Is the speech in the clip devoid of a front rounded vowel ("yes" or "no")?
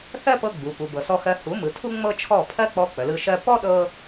yes